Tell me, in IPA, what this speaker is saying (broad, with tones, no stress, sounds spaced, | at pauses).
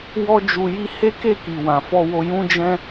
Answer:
w ɔ˦ d͡ʒ u˧ j i˦ h e˦ k e˦˨ k i˨ w ã˨ f ɔ˧ w o˧ j ũ˦ d͡ʒ ɛ̃˦